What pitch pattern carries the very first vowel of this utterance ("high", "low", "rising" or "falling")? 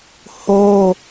high